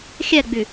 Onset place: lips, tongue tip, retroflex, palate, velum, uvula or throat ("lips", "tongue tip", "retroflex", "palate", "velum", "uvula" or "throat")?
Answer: velum